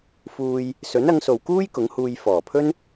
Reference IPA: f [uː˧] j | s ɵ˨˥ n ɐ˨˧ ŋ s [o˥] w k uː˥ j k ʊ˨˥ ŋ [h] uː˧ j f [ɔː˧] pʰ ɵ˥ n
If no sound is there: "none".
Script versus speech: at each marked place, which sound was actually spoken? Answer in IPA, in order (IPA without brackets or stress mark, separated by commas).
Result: uː˧, o˨, h, ɔː˨˩